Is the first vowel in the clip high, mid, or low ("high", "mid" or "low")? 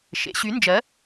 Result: mid